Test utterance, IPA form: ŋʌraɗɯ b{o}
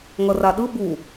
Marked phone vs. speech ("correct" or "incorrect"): incorrect